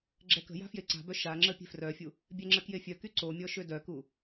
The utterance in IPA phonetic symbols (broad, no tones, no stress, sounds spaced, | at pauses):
ɡ͡ǁ ɛ k ə̤ j a̤ f j e ǀ a̤ b œ ʃ a ŋ͡ǁ ə pʲ e̤ f r œ fʲ u | bʲ ɛ ŋ͡ǁ ə k j e fʲ œ k y ǀ o mʲ ɔ ʃ ø d œ k u